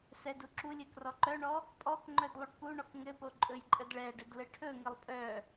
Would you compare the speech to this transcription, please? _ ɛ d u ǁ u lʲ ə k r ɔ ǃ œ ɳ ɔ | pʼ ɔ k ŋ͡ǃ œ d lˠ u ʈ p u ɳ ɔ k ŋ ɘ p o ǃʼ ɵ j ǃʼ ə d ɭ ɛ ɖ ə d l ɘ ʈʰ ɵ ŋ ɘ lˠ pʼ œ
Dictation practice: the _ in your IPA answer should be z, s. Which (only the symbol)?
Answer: s